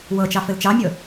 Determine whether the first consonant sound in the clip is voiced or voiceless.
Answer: voiced